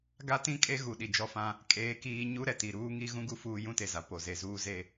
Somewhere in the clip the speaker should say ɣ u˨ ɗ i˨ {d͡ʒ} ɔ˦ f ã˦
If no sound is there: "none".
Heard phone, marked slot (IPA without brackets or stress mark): d͡ʒ